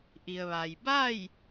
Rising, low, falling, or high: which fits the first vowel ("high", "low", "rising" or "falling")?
low